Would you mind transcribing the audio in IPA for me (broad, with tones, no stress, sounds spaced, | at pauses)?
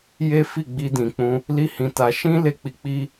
j e˦ f i˦˨ ɡ͡b i˧ d ĩ˨ k͡p ũ˧ | l i˦ h ĩ˧ t a˧ ʃ ĩ˦ l e˦˨ k͡p i˧ k͡p i˦